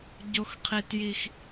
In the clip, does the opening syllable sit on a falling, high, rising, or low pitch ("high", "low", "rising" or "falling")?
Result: high